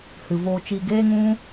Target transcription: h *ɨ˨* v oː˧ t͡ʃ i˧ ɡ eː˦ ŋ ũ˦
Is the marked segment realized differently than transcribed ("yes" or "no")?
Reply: no